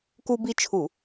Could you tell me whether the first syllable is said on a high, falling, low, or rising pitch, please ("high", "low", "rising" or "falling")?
high